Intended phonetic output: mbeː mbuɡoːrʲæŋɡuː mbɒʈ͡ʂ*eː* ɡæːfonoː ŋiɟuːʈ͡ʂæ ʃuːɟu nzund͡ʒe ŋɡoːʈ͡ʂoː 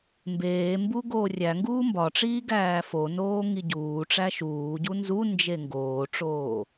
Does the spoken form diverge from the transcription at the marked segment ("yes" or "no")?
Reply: yes